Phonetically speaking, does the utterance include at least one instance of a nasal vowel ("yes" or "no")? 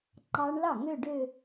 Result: no